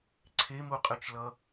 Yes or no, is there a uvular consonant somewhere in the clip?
yes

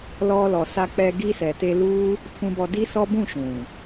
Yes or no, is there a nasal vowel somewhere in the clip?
yes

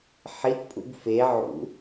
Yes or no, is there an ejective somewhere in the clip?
yes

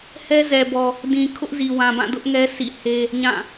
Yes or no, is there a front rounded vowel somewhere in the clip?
no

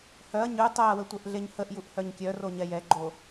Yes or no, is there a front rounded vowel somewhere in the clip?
yes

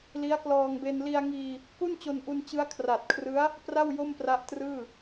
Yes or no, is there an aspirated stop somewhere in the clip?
yes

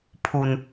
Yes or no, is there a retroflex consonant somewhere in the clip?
no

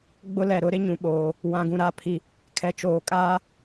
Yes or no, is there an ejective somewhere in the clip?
yes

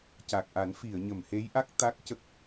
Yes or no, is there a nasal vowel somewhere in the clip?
no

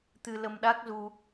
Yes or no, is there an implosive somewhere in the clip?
yes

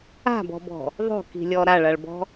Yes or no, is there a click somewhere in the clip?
no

